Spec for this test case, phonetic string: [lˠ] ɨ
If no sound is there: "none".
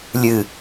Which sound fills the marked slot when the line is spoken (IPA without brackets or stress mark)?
lʲ